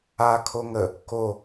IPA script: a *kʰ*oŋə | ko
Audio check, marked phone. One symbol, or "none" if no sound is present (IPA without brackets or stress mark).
kʰ